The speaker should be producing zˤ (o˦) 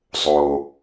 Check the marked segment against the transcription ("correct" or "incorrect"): incorrect